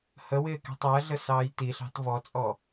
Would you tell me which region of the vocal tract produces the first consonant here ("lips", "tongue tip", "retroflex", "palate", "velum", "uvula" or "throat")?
throat